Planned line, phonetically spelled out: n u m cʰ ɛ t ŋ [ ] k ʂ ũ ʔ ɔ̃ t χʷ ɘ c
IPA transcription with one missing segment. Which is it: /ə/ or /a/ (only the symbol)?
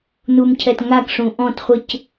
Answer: a